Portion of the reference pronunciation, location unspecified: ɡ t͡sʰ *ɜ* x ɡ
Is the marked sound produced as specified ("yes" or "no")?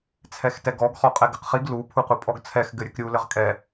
no